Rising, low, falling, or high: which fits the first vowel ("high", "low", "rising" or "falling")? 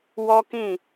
high